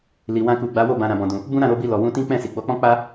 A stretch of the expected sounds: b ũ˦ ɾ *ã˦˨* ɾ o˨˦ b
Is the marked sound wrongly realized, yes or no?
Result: no